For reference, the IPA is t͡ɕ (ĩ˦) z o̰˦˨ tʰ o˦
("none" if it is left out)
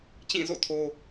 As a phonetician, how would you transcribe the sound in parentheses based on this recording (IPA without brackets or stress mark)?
ĩ˦˨